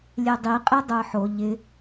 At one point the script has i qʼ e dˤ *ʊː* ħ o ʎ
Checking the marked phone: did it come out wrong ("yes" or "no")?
no